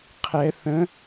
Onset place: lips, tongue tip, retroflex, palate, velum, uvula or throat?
uvula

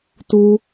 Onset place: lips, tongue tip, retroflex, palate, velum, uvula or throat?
tongue tip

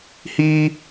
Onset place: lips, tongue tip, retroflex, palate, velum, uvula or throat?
throat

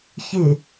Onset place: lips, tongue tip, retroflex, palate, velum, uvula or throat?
palate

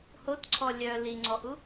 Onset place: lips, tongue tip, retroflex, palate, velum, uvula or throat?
throat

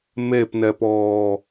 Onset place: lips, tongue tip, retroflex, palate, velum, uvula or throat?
lips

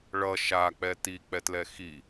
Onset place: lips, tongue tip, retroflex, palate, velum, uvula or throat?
retroflex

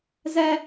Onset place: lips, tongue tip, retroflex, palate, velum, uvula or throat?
tongue tip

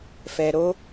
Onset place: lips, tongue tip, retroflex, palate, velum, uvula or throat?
lips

